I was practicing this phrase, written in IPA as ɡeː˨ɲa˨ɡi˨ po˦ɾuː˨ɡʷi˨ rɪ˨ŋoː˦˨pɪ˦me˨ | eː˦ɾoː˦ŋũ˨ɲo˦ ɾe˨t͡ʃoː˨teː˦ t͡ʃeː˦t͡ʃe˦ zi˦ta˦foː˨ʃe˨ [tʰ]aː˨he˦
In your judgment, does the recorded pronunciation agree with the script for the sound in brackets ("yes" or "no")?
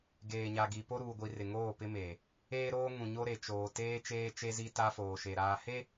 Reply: no